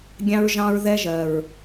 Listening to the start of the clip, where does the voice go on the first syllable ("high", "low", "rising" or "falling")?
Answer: high